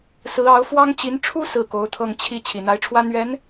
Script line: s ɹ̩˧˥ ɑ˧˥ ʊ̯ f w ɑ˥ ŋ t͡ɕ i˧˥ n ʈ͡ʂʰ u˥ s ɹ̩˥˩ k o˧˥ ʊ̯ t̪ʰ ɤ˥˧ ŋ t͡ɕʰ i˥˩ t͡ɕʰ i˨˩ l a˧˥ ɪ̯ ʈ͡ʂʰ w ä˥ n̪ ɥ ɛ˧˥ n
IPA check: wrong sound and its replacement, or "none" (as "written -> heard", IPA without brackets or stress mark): l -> n̪